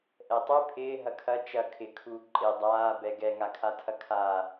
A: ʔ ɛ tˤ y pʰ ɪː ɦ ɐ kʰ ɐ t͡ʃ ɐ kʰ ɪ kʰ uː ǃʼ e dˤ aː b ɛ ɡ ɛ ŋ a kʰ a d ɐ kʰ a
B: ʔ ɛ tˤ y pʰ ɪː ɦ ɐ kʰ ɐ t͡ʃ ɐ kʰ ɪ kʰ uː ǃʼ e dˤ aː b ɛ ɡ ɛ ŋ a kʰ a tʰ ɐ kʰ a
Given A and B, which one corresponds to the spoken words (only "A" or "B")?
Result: B